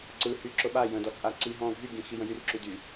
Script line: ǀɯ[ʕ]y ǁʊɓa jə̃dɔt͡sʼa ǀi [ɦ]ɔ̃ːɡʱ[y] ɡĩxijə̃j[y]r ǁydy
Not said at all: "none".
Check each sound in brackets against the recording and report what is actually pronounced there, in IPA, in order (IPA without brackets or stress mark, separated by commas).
h, ɦ, y, y